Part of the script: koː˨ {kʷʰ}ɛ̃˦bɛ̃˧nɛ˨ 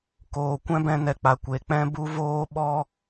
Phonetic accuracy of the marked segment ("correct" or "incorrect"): incorrect